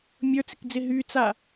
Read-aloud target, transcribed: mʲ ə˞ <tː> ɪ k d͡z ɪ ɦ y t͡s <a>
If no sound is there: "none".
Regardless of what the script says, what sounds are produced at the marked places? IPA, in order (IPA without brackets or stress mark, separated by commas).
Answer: t͡s, a